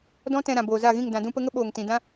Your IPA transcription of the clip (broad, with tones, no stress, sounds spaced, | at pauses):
d ɔ̃˦ t ɛ̃˧ ɾ ã˨ b oː˨ z a˦˨ ɣ ĩ˦˨ ŋ d ã˨ d ũ˧ p ə˧ ŋ ə˦ ɓ oː˨ ŋ t ĩ˨ d ã˦